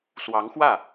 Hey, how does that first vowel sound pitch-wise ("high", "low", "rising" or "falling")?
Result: rising